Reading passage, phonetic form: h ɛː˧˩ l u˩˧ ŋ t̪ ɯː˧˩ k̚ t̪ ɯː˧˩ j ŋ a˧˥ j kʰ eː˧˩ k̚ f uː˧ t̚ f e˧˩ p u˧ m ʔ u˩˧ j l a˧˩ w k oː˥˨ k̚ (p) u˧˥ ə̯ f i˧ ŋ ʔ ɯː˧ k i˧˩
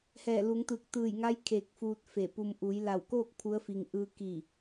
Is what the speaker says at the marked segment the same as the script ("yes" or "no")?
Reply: no